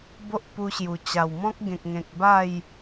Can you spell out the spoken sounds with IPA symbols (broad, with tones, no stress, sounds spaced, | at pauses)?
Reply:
b o˦ ʔ p u˧ ɕ j u˨˩ t͡ɕ a˨˩ w m ɔ̃˦ k̚ ɡ ẽ˨ k̚ ŋ ẽ˨ k̚ b a˥˧ j